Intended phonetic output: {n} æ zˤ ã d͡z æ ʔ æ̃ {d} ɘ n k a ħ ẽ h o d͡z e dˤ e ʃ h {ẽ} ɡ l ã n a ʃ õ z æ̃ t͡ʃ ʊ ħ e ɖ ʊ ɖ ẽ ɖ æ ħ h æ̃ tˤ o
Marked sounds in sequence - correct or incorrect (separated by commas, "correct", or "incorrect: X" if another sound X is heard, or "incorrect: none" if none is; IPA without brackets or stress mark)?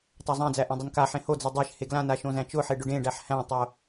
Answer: incorrect: tˤ, incorrect: dˤ, incorrect: e